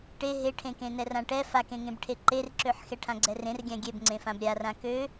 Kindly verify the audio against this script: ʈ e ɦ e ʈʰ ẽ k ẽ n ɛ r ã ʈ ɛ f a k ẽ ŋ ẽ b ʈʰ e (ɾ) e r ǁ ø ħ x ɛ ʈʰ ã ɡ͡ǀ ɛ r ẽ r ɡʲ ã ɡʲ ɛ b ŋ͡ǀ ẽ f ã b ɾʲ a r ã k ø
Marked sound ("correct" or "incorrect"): incorrect